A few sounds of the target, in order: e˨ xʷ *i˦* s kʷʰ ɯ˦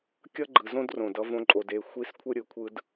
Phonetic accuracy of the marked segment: correct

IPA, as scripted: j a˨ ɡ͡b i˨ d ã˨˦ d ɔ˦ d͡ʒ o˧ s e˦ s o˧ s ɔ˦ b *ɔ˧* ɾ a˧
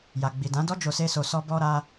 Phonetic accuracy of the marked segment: correct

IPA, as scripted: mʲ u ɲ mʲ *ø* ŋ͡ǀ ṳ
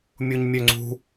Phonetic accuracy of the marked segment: correct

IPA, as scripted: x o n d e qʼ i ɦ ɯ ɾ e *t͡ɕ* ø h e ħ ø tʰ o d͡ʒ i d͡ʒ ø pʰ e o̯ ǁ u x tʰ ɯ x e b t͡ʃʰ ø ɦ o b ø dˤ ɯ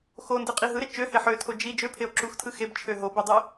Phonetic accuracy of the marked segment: incorrect: t͡ʃ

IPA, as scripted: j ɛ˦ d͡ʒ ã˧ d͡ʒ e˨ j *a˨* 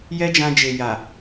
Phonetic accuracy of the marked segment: correct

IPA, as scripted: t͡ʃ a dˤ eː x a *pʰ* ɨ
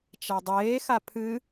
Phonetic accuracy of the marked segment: correct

